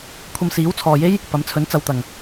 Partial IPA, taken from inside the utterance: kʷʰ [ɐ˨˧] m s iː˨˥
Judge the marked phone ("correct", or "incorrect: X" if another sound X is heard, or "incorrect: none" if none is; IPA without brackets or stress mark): incorrect: ɐ˧